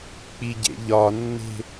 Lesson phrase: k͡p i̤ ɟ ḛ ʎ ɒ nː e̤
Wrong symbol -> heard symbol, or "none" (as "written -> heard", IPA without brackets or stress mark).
i̤ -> i